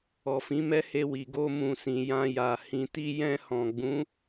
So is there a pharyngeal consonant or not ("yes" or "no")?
no